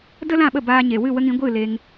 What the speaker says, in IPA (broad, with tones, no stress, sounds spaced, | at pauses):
d ə˦ l ã˦˨ ɓ ə˦˨ b aː˧ ɲ e˨ w ɨ˦˨ w ə˦ ŋ ĩ˨˦ ɡʷ ɨ˦˨ l e˧ ŋ